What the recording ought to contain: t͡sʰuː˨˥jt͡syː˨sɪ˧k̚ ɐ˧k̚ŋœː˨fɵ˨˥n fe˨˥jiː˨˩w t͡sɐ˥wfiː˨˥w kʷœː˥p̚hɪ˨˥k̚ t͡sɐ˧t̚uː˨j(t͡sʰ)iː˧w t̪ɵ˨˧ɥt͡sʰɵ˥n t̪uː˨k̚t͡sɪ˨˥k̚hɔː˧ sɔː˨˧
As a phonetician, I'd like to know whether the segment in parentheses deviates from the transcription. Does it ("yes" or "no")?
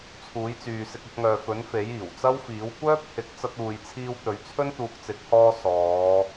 no